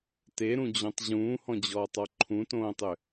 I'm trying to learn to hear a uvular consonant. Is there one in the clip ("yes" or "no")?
no